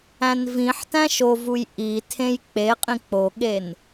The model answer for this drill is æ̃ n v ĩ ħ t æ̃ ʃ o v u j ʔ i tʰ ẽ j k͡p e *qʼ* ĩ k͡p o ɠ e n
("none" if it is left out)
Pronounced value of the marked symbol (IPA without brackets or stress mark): qʼ